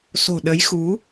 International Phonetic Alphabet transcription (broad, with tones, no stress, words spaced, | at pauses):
so̤˨˩ɗə˨˦jxu˨˦